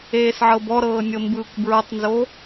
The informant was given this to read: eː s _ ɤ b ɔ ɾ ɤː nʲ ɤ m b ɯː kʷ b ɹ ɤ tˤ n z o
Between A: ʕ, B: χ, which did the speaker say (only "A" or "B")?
A